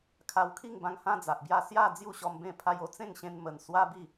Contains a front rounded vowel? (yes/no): no